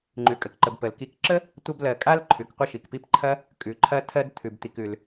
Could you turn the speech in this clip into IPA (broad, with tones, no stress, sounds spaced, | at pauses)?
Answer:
ŋ͡ǃ ʉ˩ kʼ ə˩ k ǃ ə˩ b p ə˩ l k i˨ k ǁ ə˥ | tʷ ɐ˦ b l ɜ˨ kʼ a˥ l ǃʰ ʉ˩ k qʷ ə˦ ʃ i˩ k p i˦ p ǃʰ ɐ˥ | kʼ ʉ˩ ǃʰ ɐ˦ tʰ ɜ˦ d t̪ʰ ʉ˩ b t̪ i˨ k ʉ˩ l